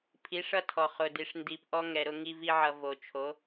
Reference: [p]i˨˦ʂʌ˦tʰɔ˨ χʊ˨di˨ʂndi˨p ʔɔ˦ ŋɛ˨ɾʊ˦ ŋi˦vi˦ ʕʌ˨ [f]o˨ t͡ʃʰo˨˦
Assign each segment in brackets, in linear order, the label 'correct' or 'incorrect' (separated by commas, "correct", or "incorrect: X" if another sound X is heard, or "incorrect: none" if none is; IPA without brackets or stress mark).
incorrect: pʰ, incorrect: v